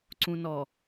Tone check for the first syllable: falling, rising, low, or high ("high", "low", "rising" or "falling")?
low